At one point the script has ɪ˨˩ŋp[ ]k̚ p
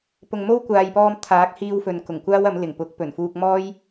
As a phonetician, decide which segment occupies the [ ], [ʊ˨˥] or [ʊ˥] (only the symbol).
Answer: ʊ˨˥